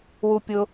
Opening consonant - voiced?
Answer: yes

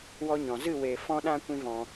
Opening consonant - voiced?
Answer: yes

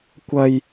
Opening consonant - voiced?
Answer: no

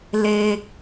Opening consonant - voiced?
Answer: yes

